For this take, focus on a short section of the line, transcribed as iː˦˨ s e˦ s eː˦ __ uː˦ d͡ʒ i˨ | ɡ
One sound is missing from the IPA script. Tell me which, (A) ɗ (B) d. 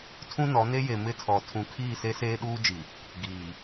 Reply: A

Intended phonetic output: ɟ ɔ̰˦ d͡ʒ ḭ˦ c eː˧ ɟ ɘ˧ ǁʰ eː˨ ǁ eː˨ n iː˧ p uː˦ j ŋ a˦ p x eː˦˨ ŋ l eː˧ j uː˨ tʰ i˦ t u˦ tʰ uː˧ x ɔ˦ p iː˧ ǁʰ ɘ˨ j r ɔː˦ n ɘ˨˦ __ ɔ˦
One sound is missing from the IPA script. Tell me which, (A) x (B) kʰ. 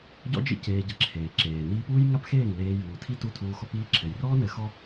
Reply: A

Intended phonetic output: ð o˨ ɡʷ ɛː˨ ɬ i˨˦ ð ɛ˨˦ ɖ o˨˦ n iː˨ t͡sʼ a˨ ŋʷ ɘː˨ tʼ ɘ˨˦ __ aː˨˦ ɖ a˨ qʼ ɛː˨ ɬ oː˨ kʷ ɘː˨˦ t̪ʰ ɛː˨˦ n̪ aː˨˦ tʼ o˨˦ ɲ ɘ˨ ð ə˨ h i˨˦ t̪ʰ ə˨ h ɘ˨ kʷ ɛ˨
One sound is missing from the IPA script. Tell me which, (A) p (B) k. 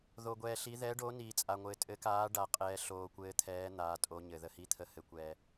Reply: B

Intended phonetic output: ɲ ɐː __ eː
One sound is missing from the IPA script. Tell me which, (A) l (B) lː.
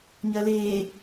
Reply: A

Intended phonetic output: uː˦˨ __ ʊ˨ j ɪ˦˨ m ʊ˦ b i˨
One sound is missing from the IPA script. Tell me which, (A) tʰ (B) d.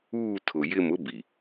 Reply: A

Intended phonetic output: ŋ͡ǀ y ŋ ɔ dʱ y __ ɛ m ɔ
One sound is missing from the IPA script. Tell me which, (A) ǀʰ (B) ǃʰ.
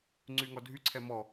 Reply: A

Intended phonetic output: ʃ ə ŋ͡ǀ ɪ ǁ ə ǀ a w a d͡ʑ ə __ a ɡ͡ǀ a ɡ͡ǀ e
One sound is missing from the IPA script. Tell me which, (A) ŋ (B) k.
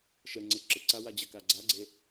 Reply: B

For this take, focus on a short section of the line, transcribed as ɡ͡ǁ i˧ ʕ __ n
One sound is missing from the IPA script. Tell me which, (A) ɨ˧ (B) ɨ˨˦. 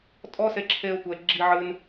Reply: A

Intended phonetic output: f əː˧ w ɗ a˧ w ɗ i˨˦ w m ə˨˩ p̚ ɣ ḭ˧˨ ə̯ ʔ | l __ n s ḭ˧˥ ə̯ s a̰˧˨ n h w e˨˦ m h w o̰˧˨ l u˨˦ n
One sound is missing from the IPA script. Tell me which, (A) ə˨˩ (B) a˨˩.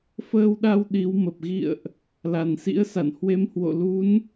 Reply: B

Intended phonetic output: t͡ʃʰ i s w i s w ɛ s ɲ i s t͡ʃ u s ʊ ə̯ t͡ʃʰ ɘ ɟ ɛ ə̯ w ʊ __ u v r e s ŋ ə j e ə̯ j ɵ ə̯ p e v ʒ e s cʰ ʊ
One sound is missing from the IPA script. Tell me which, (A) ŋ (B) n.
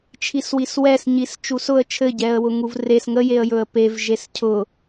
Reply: A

